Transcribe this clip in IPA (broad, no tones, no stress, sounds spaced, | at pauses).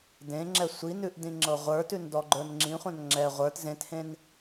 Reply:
d ẽ ŋ͡ǁ ɛ sʷ i n ʉ ʔ d ĩ ŋ͡ǁ ɤ ʁʷ ə˞ t ʉ n d ɔ ɡ͡ǃ ə˞ n ŋ͡ǁ ĩ χʷ ã n ŋ͡ǁ ɛ ʁʷ ə˞ t z ẽ t h ẽ n